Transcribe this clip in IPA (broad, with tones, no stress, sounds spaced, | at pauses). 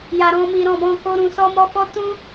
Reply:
j a˨ ɾ ɔ̃˧ m i˨ ɾ ɔ̃˨ b ɔ̃˧ k o˧ ɾ ũ˨ s ɔ˧ m ɔ˧ f ɔ˦ t ũ˦